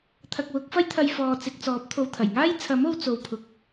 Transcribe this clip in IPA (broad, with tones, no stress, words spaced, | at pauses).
t̪ʰɐ˨k̚wʊ˨˥k̚fɐ˥jt̪ʰɐ˧j fɔː˨t͡sɪ˨k̚t͡sɔː˨˥p̚ t̪ʰo˨wt̪ʰɐ˨˩jŋaː˥j t͡sʰɐ˨˥mo˧w t͡so˧wpʰʊ˧k̚